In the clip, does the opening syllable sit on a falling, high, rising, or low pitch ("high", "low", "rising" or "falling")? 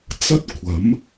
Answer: high